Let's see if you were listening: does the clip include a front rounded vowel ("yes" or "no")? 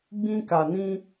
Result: no